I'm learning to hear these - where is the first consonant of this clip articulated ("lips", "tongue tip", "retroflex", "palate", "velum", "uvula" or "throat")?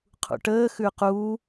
uvula